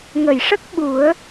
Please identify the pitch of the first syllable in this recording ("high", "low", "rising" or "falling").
low